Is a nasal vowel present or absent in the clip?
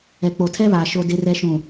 present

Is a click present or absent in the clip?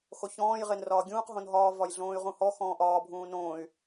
absent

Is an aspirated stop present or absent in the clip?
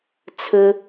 present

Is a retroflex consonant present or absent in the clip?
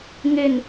absent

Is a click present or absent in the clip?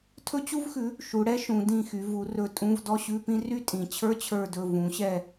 absent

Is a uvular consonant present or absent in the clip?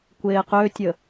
present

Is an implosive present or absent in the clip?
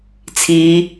absent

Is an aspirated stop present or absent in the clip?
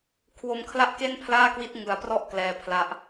present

